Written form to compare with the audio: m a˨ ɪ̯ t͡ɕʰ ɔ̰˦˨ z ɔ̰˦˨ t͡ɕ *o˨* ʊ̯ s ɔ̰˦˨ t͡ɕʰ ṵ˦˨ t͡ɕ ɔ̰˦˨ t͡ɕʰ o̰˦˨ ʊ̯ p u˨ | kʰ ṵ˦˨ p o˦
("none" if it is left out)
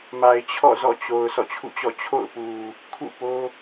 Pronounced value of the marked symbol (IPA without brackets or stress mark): o˨